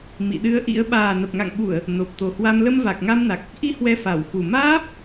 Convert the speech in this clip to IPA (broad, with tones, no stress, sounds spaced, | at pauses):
m ḭ˧˨ ɗ ɨ˧ ə̯ ʔ ḭ˧˥ ə̯ ɓ aː˨˩ n ə˨˩ p̚ ŋ a̰˧˨ ŋ ɓ u˧˩˨ ə̯ | n o˨˩ p̚ t̪ o˨˩ h w a˧ m l ə˧ m v a˨˩ k̚ ŋ a˧ m n a˨˩ k̚ | ʔ i˧ h w ɛ˧ f a˧˩ w x u˨˩ m aː˦˥ p̚